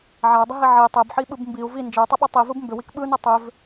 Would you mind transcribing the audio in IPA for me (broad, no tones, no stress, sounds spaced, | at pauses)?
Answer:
ʕ a u̯ dˤ ə ɦ i ʕ i tˤ e b ħ i ɓ ɯ b m b i u̯ v i n d͡ʒ ə u̯ tˤ ə ɓ ɯ tˤ i v ɯ b m b ʏ w i k ɓ ɯ n ɯ tˤ ʏ v